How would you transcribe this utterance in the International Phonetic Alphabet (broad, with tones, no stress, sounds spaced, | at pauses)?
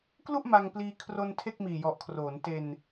k l u˥˩ ʔ m a˧ ŋ p l iː˧ kʰ r o˧ n tʰ e˥˩ k̚ m iː˨˩ j ɔ˨˩ ʔ kʰ r oː˩˦ n t e˧ n